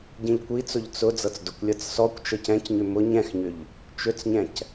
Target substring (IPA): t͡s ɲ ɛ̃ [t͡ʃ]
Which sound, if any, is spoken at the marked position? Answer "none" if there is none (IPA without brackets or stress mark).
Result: c